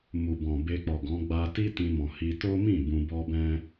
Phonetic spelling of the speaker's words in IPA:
m u˨ b ɔ̃˨ b e˧ k͡p ɔ˨ ɡ ɔ̃˨˦ ɡ͡b a˧ t i˦ t ĩ˧ m ɔ̃˨ h i˧ t o˦ m ĩ˦˨ b ũ˧ b ɔ˦ b ɛ̃˦

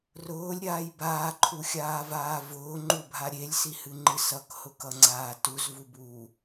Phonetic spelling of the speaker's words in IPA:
r ʊː lʲ ɾʲ aː j b aː ǃʰ u xʲ aː v aː v ʊː ŋ͡ǃ u bʱ a ɾʲ e lʲ s i h ɨ ŋ͡ǃ ɨ s ʌ k h ʊ k ʌ ŋ͡ǀ aː t u z v u b uː

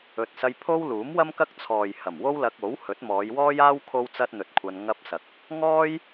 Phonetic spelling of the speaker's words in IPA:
ɵ˨ t̚ s ɐ˧ j pʰ o˥ w l uː˨˥ m w ɐ˥ m k ɐ˥ k̚ t͡sʰ ɔː˨ j h ɐ˨˩ m w o˥ w l ɐ˧ k̚ o˨˥ w h ɵ˨˥ t̚ m ɔː˨˧ j w ɔː˥ j aː˥ w kʰ o˥ w t͡s ɐ˥ t̚ n̪ ɵ˧ t̚ kʷʰ ɐ˧ n ŋ ɐ˥ p̚ s ɐ˧ k̚ | ŋ ɔː˥ j

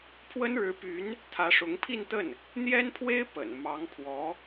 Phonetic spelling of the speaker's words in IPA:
pʰ w ə˥ n ɻ ɻ̩˧˥ p y˧˥ n | t̪ʰ ä˧˥ ʂ ʊ˧˥ ŋ pʰ i˥˧ n t̪ ə˥˩ n | n̪ j ɛ˥ n pʰ w e˥ ɪ̯ p ə̰˨˩ n m ɑ˧˥ ŋ pʰ w ɔ˧˥

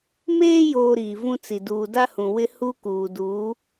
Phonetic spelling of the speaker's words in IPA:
m eː˦ j oː˨ ɾ iː˨ v ũ˦ t͡s i˨ d uː˨ d a˦ h ũ˨ w ɪ˦ h u˦ k uː˨ d uː˨˦

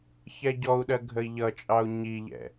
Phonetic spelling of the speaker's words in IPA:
ç ɛ ɟ ɔ u̯ ɗ ɜ ɡʱ ə i̯ ʎ ʌ t͡ʃʼ ɑ u̯ ɲ i ʎ ɛ̰

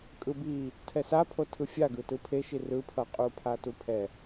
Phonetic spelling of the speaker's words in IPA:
kʼ ɯ b i | tʰ ɛ s a pʰ o tʰ ɯ fʲ a ɡ ɯ t ɯ pʰ e ʃ i r ɯ pʰ ʌ qʼ u pʰ a t u pʰ ɛ

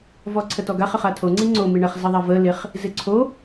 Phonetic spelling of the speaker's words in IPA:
v ɔ ǀʰ ə t ɔ ɡ a χ ə χ a tʰ o ŋ͡ǀ i ŋ͡ǀ o m i ɳ ə χ z ɪ ðˤ ɛ v ə l ɪ χ | z ɪ ǀʰ o

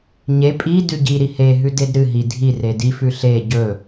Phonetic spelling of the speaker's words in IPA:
ɲ e pʼ i d ʉ ɟ i ɾ i h e ɦ ʉ d e d ɾ ɨ ɦ i dʱ i r e d i f ʉ ɬ e ɟ ɵ

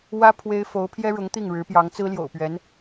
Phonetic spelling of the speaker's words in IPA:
w ä˥ pʰ w e˥ ɪ̯ f o˧˥ ʊ̯ pʰ j ɛ˥ ɻ ʊ˧˥ ŋ t̪ i˥˩ ŋ ɻ ɻ̩˧˥ p j ɑ˧˥ ŋ t͡s ɹ̩˥ l j o̰˨˩ ʊ̯ p ɥ ɛ˧˥ n

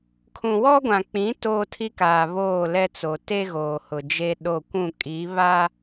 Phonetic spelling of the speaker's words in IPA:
kʰ ũ˨ w ɔ˦ ɡʷ ã˨ k͡p ĩ˨˦ t oː˦ tʰ i˦ k aː˨ β oː˦˨ l ɛ˦ t͡s o˨ t e˦ ɣ oː˨ h ʊ˨ d͡ʒ e˦ ɗ o˦˨ kʷ ũ˦˨ kʼ i˨˦ β a˦

